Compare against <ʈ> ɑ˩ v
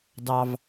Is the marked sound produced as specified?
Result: no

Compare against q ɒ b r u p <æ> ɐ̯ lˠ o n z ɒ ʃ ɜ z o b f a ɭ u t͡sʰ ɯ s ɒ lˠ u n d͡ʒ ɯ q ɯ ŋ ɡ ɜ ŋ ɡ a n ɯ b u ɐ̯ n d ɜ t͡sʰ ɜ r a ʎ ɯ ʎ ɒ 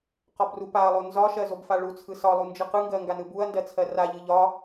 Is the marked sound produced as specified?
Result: no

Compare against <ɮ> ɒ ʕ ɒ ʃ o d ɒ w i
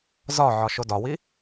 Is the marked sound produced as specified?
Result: no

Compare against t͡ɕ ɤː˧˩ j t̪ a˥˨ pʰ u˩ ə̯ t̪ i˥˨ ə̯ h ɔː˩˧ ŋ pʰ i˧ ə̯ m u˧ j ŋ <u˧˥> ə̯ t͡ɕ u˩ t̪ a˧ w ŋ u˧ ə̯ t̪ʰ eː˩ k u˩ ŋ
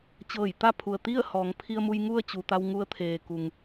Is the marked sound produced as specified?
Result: no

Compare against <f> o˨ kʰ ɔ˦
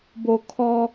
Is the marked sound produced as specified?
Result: no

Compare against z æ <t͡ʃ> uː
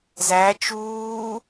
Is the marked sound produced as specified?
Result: yes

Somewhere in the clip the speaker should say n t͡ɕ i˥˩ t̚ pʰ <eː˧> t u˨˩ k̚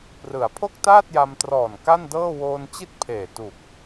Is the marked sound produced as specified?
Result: no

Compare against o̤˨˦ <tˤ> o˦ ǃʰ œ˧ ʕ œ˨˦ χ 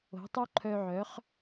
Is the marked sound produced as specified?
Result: yes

